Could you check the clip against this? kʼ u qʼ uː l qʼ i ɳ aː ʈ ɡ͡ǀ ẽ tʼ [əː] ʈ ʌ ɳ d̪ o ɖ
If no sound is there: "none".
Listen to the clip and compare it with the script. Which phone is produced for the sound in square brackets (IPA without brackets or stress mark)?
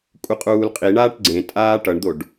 aː